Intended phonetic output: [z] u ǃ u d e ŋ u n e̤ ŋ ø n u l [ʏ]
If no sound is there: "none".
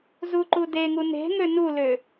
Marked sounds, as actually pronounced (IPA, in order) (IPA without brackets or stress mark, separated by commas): z, ʏ